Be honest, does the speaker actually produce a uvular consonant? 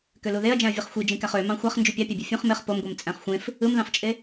yes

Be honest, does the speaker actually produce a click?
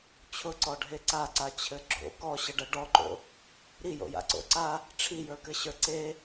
yes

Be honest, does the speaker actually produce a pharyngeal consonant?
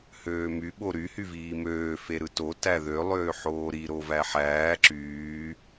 yes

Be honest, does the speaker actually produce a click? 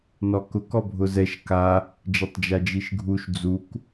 no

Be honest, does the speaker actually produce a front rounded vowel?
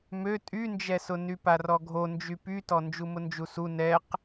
yes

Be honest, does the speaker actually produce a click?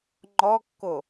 yes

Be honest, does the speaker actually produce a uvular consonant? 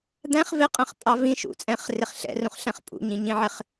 yes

